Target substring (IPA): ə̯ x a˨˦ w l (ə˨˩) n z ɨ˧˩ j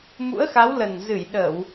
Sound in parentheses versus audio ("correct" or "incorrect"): correct